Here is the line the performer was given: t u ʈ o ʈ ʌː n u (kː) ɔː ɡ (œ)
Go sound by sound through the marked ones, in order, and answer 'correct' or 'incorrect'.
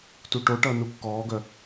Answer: correct, correct

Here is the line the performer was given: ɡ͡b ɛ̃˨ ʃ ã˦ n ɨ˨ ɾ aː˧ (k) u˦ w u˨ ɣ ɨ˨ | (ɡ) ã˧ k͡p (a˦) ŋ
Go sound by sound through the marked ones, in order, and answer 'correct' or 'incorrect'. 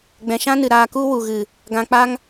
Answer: correct, correct, correct

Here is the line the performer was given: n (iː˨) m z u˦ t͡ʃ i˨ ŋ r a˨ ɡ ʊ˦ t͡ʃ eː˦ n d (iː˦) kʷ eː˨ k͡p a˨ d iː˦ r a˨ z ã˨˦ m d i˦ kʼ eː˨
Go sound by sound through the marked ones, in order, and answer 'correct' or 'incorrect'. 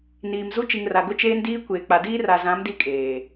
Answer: correct, correct

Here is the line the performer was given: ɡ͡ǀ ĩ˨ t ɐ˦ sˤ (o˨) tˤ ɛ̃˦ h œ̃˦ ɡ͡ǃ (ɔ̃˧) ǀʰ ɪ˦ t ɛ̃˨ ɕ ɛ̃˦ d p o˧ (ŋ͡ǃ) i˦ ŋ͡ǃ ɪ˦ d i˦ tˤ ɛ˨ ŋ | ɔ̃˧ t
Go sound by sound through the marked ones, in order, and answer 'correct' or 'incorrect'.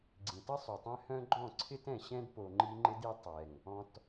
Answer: incorrect: u˨, incorrect: ɔ̃˦˨, correct

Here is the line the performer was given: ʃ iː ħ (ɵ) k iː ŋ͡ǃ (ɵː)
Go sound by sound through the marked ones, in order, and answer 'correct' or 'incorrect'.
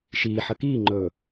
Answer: incorrect: ə, correct

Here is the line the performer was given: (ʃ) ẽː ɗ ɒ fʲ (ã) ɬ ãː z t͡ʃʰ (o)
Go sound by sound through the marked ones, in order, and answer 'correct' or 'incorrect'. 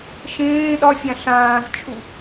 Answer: correct, correct, incorrect: u

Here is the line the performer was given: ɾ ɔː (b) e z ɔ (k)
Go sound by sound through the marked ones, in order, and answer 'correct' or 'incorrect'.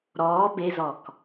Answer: correct, correct

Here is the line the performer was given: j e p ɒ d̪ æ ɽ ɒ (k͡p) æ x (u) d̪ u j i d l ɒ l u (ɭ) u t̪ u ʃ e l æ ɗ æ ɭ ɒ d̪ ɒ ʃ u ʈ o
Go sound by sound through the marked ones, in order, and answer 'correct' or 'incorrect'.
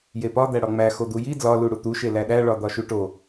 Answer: incorrect: ŋ͡m, incorrect: o, incorrect: ɽ

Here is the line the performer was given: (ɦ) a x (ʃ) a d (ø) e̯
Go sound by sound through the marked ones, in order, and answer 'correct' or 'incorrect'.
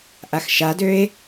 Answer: incorrect: ʔ, correct, correct

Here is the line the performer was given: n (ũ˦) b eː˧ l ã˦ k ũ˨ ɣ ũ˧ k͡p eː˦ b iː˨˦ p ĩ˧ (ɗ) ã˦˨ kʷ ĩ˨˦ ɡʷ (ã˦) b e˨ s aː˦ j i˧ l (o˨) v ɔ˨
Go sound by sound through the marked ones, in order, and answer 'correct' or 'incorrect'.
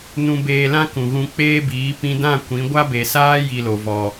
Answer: incorrect: ũ˧, incorrect: d, incorrect: a˦, correct

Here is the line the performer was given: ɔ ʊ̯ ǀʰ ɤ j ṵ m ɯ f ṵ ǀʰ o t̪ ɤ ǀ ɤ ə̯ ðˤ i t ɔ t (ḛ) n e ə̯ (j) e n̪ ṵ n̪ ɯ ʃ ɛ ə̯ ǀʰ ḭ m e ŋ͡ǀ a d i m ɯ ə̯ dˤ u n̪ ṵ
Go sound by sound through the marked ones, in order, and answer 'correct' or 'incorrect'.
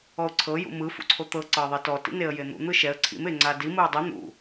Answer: incorrect: ḭ, correct

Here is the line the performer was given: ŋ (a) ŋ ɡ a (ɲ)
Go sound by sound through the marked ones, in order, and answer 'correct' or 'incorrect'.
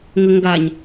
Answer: incorrect: ə, correct

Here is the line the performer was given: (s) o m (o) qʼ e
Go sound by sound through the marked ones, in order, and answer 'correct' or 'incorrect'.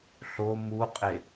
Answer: incorrect: ɬ, incorrect: u

